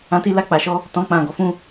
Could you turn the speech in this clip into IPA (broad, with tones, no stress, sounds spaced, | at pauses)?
ã˦ t i˦ l a˦ k͡p a˧ ʃ ɔ˦ | t ɔ̃˦ k͡p ã˦˨ ɡ ɔ˨˦ f ũ˦